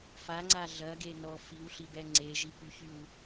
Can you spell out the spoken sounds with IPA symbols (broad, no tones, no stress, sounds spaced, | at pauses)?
f a ŋ͡ǀ a ɮ ɐ ɡ e n ɔ f i w ɬ i b ɛ ŋ͡ǀ e ʒ i p y ç y w